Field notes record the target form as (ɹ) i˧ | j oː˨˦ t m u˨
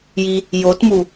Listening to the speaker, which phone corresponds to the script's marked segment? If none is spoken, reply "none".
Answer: j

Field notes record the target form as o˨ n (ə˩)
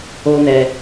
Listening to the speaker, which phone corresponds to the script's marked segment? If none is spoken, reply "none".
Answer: ɛ˩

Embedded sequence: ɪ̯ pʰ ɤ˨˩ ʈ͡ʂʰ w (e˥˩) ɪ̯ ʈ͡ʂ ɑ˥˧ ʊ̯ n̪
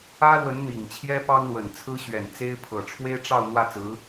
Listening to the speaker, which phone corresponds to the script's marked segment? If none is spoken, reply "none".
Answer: e˥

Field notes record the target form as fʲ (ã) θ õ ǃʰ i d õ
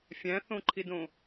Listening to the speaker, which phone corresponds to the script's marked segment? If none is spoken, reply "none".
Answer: æ̃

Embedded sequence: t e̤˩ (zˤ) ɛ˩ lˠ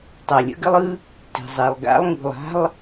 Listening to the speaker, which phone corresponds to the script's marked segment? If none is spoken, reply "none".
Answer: zˤ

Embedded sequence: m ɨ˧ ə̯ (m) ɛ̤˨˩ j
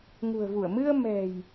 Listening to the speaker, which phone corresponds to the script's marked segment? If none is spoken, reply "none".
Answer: m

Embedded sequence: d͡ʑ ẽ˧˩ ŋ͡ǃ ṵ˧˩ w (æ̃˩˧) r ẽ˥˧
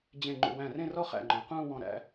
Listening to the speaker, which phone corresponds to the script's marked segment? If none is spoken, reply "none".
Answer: æ̃˧˩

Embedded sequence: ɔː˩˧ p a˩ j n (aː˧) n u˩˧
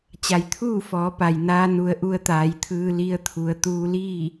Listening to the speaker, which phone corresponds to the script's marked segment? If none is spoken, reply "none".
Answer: aː˧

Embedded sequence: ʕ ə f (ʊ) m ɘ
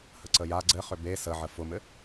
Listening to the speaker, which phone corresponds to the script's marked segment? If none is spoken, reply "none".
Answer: ʊ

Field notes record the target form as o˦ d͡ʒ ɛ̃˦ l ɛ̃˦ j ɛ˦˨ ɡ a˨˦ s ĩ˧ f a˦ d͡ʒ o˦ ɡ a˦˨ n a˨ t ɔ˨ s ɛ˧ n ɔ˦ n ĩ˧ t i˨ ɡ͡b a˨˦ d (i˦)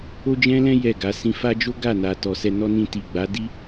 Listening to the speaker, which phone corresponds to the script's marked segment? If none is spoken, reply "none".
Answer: i˦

